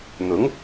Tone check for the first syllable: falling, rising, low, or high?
rising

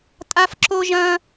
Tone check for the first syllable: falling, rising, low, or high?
high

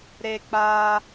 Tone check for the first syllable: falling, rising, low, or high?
high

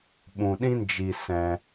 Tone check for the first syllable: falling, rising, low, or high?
low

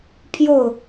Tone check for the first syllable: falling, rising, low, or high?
falling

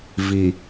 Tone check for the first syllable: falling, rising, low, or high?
low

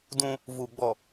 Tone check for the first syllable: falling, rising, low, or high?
high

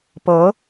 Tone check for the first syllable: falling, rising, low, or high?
rising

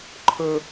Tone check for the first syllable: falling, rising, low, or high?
high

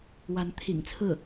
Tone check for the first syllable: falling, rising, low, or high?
rising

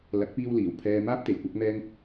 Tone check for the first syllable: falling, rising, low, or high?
rising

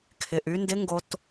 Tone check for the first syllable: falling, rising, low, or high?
low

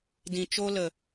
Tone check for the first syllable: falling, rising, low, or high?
low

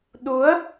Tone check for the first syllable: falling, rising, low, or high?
rising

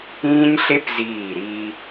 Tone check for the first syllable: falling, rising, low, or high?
high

